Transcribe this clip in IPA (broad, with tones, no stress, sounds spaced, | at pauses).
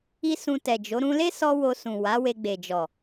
i˦ s ũ˧ t ɛ˨ d͡ʒ o˨˦ ɾ ũ˦ l e˦ s ɔ˧ w o˧ s ũ˨ w a˨˦ w e˧ ɡ͡b e˨ d͡ʒ ɔ˨